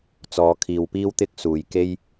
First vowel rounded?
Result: yes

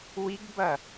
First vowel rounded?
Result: no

